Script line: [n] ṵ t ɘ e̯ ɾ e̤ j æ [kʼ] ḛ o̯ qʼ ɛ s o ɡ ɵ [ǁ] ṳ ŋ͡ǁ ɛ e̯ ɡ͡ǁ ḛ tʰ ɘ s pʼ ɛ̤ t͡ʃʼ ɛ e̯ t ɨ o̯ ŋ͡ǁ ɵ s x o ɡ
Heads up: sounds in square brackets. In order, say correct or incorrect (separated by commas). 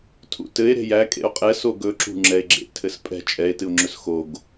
incorrect, correct, correct